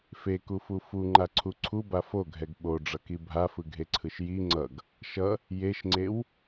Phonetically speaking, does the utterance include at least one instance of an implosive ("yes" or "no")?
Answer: yes